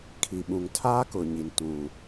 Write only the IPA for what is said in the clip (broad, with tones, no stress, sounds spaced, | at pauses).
kʰ i˨ ɓ ũ˨ ŋ tʰ aː˦ k ʊ˨ ɲ i˨ n t ũ˨